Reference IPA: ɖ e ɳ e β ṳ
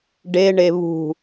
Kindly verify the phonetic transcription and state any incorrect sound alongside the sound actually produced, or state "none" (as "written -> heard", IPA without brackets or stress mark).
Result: none